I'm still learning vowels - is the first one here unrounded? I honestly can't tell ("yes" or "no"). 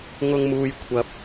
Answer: no